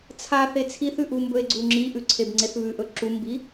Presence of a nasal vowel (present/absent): absent